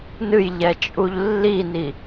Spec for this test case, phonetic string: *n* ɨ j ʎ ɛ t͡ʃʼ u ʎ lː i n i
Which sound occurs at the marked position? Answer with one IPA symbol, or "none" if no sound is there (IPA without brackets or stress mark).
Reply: n